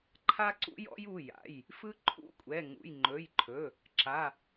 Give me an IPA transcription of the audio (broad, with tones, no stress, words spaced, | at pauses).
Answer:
ǃʰa˦ǀṵ˦jɔ̰˦j u˩˧˩ja̰˩˧˩j | fɯ˦ ǃʰṵ˦kʷʼɛ˩˧˩ŋṵ˩˧˩j ŋ͡ǃɵ˩˧˩jǃʰɵ˩˧˩ | ǁa˩˧˩